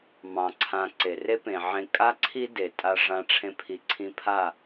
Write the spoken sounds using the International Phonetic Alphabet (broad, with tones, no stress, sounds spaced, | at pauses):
m ɑ̃˨ ǀʰ ã˨ ǀ e˨ r e˦ p ẽ˨ ʕ ẽ˧ kʼ a˦ ǀʰ i˦ d e˨ tʼ a˧ ʐ ã˧ ʈ͡ʂʰ ẽ˧ pʰ i˨ ǀʰ ĩ˧ pʰ a˦˨